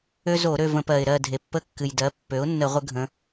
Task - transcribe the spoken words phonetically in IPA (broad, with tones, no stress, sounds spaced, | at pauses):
ø˦ z o˧˩˧ ɾ ø˦˨ v ə̃˧˩˧ p ɜ˩ ɪ̯ ɾ ɜ˦˨ dʱ e˩ pː ə˦ kː ɨ˩ j d ɜ˩˥ pː ø˩˥ ʊ̯ nː ə˧˩˧ ʁʷ ə˦ ɡʱ ə̃˩˧